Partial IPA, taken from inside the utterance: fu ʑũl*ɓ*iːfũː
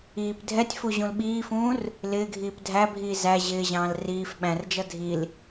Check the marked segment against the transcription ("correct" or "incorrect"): correct